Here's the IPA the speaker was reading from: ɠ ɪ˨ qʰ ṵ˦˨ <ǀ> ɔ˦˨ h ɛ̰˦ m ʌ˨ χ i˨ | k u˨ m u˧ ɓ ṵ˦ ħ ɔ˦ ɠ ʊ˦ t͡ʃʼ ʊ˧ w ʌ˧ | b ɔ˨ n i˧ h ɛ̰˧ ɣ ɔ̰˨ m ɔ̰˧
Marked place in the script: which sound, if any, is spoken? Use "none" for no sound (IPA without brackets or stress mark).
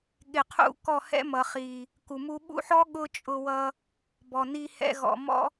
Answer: k